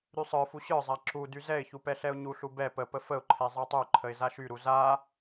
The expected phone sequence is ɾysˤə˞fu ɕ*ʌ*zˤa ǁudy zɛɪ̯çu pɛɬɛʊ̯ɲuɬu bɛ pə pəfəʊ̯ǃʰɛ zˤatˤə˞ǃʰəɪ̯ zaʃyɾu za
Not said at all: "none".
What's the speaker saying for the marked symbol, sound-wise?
ə˞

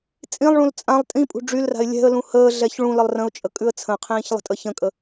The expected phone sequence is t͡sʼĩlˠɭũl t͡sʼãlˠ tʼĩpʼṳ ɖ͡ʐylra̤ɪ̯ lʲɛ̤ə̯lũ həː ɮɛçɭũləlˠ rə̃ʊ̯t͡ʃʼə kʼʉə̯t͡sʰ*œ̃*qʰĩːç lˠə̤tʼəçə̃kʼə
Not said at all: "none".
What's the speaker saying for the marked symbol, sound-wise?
ə̃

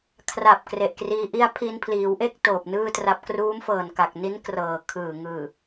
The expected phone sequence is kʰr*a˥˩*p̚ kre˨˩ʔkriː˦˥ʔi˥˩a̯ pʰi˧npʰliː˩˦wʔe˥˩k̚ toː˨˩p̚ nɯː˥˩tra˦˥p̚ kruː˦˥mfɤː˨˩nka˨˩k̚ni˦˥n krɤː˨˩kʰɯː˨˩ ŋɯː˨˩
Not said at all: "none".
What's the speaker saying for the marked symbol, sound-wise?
a˨˩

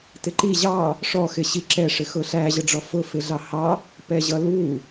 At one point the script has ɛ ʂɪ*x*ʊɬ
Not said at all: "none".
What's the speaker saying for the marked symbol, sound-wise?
x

